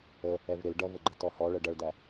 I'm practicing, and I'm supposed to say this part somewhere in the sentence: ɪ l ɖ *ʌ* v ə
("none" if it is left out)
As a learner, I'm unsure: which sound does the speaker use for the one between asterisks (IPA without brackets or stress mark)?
ʌ